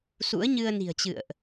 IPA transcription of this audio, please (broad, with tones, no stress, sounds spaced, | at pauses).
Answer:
s ṵ˧˥ ə̯ ɲ ɨ˧ ə̯ n i̤˨˩ ə̯ t͡ɕ ɨ̰˧˨ ə̯ ʔ